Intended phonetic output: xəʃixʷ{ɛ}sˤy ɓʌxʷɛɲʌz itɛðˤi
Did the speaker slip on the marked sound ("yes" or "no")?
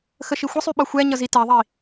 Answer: yes